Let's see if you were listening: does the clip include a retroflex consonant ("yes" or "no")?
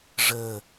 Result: yes